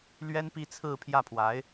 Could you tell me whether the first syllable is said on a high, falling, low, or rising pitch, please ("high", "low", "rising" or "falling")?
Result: high